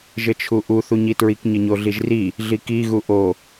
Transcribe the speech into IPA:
ʒ ɘ t͡ʃʰ u ʔ u θ u ɲ i t ɹ i k ɲ ɘ ɲ o ɮ i ʒ r i | ɮ i k i ɣ u ʔ o

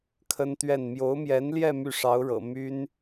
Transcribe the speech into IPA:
kʰ ə˥ n t̪ ɥ ɛ˥˩ n m j o˧˥ ʊ̯ m j ɛ˧˥ n l j ɛ˥˧ m y˥˩ ʂ ɑ˧˥ ʊ̯ ɻ ɤ̰˨˩ m y˥ n

